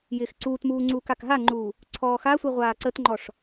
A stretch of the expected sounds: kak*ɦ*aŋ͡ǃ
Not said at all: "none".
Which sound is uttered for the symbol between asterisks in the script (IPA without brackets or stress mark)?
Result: ɦ